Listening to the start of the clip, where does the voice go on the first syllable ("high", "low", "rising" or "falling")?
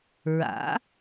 rising